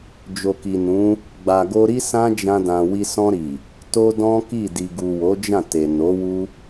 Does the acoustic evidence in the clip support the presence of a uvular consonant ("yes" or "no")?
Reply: no